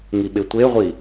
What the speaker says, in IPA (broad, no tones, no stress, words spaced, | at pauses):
ŋiɓetʷeʁʷi